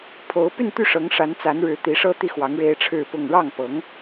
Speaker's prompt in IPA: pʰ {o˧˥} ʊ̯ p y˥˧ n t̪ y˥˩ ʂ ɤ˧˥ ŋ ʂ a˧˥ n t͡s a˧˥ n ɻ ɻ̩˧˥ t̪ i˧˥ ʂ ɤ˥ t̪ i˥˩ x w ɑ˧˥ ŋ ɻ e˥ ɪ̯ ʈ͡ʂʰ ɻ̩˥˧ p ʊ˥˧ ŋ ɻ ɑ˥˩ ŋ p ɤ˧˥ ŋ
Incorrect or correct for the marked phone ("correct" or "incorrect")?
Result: correct